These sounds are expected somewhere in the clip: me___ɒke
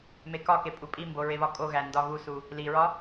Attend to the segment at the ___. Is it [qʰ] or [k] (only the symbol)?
k